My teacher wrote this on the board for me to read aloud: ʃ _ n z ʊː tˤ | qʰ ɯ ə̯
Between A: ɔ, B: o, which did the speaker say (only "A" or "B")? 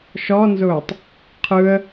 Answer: A